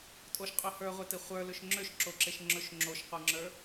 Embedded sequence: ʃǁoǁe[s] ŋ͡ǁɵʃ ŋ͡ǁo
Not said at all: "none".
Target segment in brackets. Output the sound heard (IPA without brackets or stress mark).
ʃ